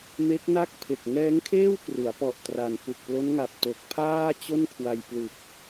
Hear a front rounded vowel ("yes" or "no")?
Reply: no